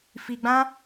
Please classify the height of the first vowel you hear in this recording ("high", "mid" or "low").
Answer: high